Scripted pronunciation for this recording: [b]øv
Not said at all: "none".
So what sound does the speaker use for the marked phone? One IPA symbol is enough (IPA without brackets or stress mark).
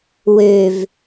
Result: w